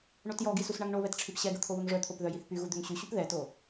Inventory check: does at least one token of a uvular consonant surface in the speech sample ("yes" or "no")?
no